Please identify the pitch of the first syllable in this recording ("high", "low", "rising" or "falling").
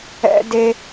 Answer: high